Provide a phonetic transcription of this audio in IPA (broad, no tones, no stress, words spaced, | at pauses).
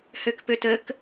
høkpøtək